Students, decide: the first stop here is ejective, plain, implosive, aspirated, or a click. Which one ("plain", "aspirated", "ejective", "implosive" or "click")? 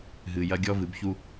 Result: plain